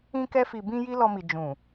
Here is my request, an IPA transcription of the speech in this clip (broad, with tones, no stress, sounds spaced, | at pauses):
ĩ˧ k ɛ˧ f i˨ b ĩ˧ j i˦ l ɔ˧ m i˨ d͡ʒ ũ˨